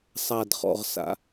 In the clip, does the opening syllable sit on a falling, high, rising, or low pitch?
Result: low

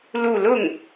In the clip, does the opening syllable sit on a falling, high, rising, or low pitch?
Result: falling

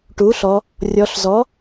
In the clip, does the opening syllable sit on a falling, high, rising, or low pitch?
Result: rising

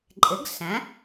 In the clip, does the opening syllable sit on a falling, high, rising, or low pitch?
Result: rising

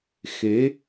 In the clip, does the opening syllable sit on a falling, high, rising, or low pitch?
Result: rising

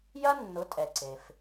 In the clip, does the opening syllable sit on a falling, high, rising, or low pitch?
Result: high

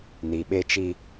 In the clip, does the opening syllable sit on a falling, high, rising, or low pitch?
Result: low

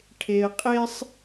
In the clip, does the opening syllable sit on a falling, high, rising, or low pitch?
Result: low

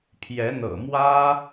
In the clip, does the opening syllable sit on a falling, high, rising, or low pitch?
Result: rising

